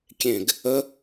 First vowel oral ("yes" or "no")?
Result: no